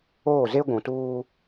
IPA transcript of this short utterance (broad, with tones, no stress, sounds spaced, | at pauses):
oː˦˨ z e˦ ɡʷ ũ˨ t uː˦